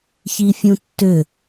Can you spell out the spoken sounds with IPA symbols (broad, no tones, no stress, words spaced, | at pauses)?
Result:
çifʲũtːʏ